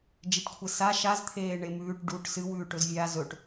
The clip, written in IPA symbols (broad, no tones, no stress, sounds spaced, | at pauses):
d͡ʒ e ʈ kʷʰ e s a ʃ a z t̪ʰ eː ɳ e m ʉː ʈ ɖ u ʈ s ɨ w ʉː ʈ ɵ z vʲ a z ɵ ʈ